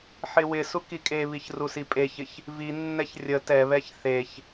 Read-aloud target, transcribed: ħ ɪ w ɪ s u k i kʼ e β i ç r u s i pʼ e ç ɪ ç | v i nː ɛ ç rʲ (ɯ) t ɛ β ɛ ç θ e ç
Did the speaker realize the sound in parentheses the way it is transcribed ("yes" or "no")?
no